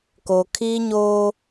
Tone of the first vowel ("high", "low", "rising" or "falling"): low